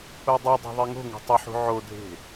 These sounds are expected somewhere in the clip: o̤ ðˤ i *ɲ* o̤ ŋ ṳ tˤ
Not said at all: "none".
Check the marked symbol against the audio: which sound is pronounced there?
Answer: ŋ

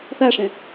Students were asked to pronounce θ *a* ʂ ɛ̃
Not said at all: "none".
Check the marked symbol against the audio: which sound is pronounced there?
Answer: a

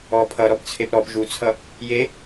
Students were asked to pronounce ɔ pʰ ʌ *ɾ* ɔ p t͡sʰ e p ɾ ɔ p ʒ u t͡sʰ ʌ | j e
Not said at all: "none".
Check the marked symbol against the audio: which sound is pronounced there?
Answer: ɾ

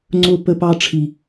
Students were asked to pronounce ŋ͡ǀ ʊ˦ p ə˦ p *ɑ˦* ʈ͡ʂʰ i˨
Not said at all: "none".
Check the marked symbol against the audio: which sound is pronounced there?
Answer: ɑ˦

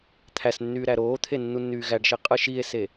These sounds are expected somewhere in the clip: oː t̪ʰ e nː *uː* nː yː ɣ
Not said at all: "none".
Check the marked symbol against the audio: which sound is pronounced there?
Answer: u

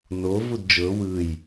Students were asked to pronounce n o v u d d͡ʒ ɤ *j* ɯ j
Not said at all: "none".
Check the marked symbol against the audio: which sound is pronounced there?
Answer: w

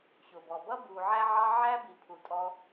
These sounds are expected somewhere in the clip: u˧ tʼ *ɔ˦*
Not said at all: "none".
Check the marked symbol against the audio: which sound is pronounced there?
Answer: ɔ˦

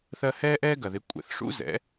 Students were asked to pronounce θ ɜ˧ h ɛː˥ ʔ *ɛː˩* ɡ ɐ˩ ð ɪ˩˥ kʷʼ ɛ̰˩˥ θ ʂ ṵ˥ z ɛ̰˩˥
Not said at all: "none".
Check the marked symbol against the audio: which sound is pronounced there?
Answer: ɛː˥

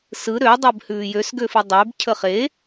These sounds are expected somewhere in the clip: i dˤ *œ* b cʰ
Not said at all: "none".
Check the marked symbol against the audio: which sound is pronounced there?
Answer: ø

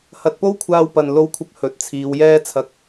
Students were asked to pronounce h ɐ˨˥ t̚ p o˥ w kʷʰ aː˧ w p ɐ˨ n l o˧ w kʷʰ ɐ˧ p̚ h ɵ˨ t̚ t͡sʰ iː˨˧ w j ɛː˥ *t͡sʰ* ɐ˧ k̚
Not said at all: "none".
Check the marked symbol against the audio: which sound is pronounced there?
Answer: t͡sʰ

